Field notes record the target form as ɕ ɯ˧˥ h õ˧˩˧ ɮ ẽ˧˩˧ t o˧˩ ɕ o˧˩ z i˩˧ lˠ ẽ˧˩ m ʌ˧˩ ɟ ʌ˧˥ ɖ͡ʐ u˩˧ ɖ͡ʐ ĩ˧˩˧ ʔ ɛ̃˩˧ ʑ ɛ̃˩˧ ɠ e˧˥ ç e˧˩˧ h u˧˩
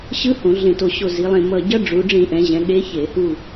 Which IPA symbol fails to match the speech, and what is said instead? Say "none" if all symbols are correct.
none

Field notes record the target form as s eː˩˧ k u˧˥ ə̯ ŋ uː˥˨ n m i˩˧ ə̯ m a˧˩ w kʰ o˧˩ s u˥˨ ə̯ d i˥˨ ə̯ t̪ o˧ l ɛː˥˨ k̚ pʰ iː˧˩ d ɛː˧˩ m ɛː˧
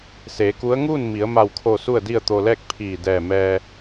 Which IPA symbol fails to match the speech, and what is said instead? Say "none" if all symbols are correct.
none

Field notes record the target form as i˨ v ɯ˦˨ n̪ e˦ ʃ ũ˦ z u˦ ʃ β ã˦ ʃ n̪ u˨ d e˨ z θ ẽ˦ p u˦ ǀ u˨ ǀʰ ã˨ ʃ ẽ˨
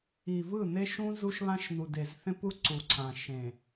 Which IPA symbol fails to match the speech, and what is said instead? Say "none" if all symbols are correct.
none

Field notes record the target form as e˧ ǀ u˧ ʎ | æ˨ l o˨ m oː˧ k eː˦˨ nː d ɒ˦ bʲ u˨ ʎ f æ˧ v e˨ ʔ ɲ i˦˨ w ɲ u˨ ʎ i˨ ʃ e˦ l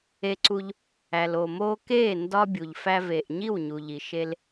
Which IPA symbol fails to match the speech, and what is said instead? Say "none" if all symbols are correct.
nː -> n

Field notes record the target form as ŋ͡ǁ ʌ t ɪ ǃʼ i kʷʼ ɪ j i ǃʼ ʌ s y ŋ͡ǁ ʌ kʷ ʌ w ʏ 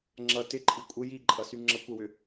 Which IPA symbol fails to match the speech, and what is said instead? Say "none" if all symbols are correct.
none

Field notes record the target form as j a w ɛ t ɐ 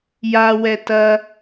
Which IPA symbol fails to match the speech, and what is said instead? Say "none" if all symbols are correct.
none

